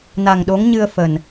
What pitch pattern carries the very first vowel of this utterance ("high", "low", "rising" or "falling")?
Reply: low